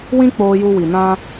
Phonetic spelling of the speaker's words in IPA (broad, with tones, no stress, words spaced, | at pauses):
wĩ˦k͡poː˧ju˧ wi˨nã˧